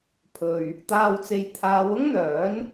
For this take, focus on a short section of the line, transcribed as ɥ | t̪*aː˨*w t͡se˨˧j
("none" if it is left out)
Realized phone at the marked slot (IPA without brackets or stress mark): aː˨